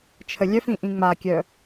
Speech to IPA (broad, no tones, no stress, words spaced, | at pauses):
t͡ʃʰəlʲœfĩ ʔĩŋ͡makʲœ